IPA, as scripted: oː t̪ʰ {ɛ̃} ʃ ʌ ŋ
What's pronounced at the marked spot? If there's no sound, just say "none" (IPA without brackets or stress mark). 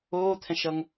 ɛ̃